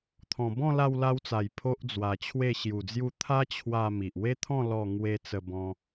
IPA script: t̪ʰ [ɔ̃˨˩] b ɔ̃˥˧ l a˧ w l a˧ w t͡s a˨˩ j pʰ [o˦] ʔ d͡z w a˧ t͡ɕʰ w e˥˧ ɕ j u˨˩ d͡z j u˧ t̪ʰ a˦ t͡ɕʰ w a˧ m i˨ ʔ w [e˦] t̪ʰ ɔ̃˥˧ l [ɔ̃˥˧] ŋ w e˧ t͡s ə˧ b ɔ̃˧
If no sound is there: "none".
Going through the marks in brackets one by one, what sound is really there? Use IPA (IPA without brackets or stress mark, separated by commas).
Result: ɔ̃˨˩, o˦, e˦, ɔ˥˧